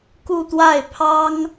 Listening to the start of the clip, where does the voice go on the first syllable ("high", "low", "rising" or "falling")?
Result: falling